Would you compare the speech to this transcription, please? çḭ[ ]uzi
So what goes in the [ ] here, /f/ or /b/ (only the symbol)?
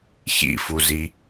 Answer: f